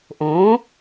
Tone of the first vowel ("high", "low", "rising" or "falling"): rising